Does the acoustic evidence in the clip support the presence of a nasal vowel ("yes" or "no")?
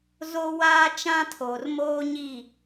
yes